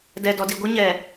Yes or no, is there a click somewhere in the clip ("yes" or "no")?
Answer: no